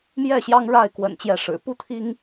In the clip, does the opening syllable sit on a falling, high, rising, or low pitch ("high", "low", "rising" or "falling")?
falling